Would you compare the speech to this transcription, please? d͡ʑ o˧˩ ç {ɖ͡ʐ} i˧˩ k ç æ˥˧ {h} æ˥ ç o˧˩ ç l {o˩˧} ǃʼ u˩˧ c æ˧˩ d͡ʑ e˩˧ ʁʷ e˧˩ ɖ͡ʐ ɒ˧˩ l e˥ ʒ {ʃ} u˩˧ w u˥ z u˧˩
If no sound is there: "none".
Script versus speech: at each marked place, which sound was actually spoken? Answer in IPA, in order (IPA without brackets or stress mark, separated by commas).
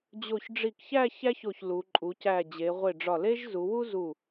ɖ͡ʐ, ç, u˩˧, z